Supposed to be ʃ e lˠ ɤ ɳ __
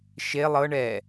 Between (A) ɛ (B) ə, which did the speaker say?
A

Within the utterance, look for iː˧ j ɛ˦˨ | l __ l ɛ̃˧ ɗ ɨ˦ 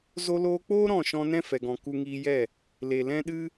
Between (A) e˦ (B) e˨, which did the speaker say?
B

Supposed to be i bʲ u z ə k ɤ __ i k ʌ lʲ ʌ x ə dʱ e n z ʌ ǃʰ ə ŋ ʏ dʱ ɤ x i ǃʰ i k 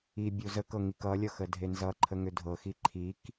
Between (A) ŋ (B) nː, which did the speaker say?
A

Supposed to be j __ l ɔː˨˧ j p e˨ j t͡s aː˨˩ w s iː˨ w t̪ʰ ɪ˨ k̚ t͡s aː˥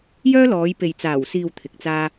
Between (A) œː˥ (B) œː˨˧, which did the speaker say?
A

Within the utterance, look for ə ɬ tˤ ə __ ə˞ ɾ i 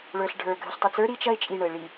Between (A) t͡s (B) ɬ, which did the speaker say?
A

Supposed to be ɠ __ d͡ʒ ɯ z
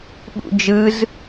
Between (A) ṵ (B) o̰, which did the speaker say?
A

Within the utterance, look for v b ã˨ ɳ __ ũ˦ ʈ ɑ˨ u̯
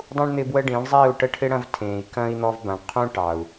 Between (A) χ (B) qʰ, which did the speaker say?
B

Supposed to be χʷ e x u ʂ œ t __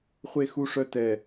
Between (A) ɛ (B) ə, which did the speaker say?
A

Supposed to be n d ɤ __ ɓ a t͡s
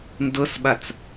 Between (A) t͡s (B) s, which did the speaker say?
B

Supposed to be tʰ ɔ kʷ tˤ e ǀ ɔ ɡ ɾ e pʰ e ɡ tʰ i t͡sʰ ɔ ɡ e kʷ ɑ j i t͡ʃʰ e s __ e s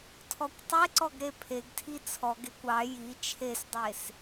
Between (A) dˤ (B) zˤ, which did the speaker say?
A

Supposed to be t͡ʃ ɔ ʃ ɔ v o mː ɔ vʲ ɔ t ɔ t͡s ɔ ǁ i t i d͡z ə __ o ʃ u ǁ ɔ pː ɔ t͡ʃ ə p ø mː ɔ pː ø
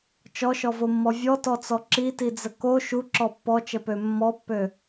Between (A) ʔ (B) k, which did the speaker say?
B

